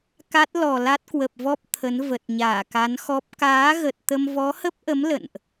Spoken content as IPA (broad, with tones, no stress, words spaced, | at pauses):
ka˦˥t̚ lɔ˨˩la˦˥t̚kwə˨˩p̚vɔ˦˥p̚ t̪ʰə˨˦n və˨˩t̚ɲaː˧˩ka˨˦nxɔ˦˥p̚ kaː˨˦ ɣə˨˩t̚t̪ə˧m vɔ˨˦hə˦˥p̚ʔə˨˦m lə̰˧˨nʔ